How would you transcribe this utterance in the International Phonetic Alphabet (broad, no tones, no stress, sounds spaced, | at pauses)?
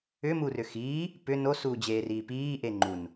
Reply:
ʏ m u r ʏ x iː | p ʏ n o s uː d͡ʑ eː r iː p iː ʔ e ŋ͡ǃ u n